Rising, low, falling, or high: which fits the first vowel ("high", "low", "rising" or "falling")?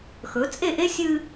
rising